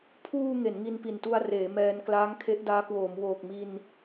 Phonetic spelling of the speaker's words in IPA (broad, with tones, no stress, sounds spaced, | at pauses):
pʰ uː˧ ŋ e˩˦ n ŋ i˧ n p i˨˩ n t u˧ a̯ r eː˩˦ m ɛː˧ n k l aː˦˥ ŋ kʰ e˦˥ ʔ d aː˦˥ k w oː˩˦ m w oː˨˩ k̚ m i˧ n